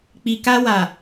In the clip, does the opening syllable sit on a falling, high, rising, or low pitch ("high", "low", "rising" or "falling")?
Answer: low